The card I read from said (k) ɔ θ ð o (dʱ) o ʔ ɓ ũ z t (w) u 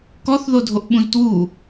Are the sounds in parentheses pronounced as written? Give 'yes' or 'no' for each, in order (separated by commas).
yes, yes, yes